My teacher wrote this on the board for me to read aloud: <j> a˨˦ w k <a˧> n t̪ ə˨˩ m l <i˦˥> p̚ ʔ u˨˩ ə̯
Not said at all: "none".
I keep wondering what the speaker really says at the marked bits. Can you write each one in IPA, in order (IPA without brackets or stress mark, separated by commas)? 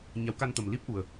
ɲ, a˧, i˦˥